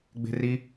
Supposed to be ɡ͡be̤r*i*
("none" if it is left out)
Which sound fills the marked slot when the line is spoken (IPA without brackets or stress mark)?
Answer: i